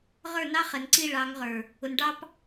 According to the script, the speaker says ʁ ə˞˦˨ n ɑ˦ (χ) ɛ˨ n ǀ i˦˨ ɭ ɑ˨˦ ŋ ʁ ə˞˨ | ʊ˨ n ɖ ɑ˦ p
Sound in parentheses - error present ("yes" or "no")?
no